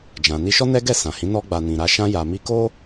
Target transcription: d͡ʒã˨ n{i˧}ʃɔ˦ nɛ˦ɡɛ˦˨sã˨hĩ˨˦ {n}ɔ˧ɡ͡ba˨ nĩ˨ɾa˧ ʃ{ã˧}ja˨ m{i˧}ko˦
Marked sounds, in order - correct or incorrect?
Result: correct, correct, correct, correct

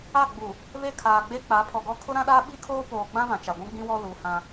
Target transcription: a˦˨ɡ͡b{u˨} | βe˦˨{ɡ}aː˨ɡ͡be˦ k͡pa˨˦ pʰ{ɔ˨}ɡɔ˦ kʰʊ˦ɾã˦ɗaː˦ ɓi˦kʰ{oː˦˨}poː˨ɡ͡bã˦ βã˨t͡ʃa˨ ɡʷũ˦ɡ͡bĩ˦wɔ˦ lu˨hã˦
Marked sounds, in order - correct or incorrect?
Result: correct, incorrect, correct, incorrect

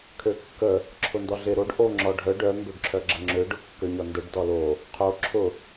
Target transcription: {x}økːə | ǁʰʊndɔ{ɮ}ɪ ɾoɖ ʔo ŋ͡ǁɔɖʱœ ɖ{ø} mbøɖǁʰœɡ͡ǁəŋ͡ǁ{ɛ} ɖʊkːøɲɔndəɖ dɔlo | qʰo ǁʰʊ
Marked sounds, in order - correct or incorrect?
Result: incorrect, correct, incorrect, incorrect

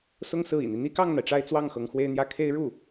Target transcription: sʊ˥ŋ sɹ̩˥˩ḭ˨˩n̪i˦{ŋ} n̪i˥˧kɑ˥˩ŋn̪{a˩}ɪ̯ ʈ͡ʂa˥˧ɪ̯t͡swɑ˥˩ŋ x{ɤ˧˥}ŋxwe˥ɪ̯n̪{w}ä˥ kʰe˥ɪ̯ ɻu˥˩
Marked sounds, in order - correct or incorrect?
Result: incorrect, correct, correct, incorrect

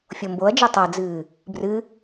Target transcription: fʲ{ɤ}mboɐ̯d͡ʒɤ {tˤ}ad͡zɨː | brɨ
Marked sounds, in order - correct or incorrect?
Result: incorrect, correct

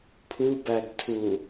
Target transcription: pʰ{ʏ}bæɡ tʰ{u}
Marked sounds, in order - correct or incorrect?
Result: incorrect, correct

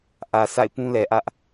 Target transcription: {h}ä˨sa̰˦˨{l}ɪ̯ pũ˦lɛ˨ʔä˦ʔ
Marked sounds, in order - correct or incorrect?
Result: incorrect, incorrect

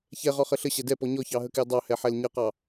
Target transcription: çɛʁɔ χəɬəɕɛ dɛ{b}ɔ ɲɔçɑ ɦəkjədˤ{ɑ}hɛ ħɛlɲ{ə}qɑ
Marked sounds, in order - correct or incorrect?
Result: incorrect, correct, correct

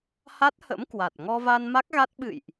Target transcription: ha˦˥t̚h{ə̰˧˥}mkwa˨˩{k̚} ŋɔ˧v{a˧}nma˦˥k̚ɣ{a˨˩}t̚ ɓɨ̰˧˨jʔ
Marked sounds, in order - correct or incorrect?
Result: correct, incorrect, correct, incorrect

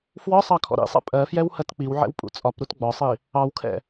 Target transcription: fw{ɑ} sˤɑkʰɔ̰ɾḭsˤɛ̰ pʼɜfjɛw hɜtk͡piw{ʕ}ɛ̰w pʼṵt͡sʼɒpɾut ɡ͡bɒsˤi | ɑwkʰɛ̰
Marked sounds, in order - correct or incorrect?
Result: incorrect, correct

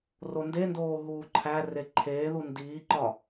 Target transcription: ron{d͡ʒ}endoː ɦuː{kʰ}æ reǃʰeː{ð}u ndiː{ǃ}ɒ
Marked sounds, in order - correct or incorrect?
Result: incorrect, incorrect, correct, correct

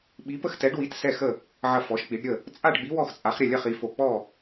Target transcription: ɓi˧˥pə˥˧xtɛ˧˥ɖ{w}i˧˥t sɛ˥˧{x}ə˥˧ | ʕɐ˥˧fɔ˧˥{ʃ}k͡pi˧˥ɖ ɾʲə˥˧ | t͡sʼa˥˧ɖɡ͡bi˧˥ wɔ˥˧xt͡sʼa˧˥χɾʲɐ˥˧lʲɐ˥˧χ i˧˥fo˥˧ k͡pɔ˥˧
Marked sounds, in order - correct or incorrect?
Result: correct, correct, correct

